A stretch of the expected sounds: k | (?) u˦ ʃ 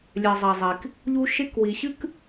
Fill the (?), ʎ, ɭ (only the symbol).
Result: ʎ